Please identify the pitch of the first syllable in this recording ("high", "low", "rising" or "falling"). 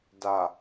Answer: low